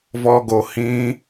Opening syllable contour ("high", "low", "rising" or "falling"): high